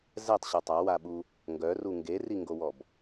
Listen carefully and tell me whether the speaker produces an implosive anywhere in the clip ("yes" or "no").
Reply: yes